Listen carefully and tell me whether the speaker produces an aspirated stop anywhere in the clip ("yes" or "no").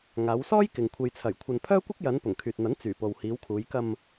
yes